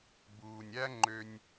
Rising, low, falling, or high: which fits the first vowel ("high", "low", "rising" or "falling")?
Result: low